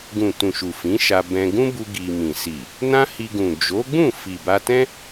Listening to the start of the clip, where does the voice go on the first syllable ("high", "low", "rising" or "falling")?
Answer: low